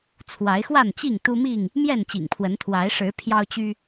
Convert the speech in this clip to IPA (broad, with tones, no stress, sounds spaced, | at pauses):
t͡sʰ w a˨˦ ɪ̯ x w a˥˨ n t͡ɕ i˥˨ ŋ t̪ u˦ m i˥˨ ŋ | m j ɛ˥˨ n t͡ɕ ḭ˨˩ ŋ pʰ w ə˨˦ n t̪ʰ w a˨˦ ɪ̯ ʂ ɻ̩˨˦ pʰ j ɑ˦ ʊ̯ t͡ɕ y˦